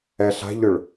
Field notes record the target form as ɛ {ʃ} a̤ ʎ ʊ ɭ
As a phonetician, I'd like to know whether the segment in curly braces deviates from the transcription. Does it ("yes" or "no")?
yes